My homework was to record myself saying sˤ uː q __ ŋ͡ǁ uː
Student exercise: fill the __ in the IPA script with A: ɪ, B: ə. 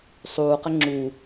B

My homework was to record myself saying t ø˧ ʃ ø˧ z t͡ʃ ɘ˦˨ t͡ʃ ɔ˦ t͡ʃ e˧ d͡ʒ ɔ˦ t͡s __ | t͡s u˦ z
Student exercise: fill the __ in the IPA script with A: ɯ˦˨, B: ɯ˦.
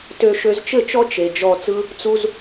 B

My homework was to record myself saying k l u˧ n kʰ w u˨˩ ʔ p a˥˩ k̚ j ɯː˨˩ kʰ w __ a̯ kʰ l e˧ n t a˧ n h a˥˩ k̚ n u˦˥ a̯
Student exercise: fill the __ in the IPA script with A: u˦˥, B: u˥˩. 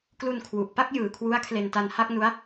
A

